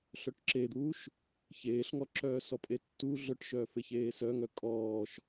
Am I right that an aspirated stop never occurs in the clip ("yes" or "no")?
yes